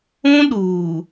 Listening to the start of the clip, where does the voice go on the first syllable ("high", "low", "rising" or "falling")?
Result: high